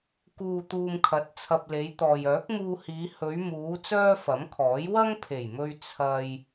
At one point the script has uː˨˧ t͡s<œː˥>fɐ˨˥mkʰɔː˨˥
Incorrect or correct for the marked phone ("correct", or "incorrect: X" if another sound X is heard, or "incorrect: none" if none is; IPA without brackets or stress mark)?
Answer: correct